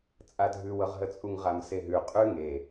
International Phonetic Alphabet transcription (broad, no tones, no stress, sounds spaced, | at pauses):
t͡sʼ a dʱ ʉ w ɤ ʁ ɦ ə t͡sʼ u ŋ ʁ a m s e ɦ ʉ qʼ ʉ ŋ e